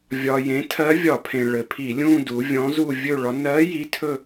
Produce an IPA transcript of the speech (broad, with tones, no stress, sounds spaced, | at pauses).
vʲ ɒ˩ j ẽ˩˧ tʰ ɜ˧˥ vʲ ɒ˧˩˧ pʰ ẽ˩ ɭ ɘ˩ pʰ i˧˩˧ lʲ ũ˥˧ d u˩˧ vʲ ɔ̃˧˥ z u˥˧ vʲ ɵ˥˧ ɭ ɒ˧˥ n ɜ˧˥ j i˧˥ tʰ ɵ˥˧